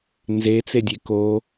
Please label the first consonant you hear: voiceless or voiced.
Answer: voiced